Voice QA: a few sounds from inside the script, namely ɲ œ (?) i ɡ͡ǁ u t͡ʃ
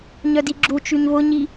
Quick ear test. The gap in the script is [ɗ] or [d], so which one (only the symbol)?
d